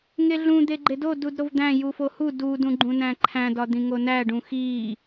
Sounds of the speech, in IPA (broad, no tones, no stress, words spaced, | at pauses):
ŋeɮũ d̪eɡ͡ǃedo dudɾovd̪æ̃ jufohu du dũɡ͡ǃũnæ̃ǃʰæ̃ dɒd̪ĩŋonæ ɖũxi